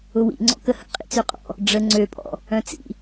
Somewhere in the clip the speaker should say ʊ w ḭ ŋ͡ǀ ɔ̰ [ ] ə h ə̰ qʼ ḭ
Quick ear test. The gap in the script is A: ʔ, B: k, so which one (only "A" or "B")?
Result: B